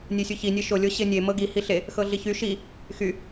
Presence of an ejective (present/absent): absent